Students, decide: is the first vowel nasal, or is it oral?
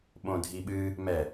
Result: nasal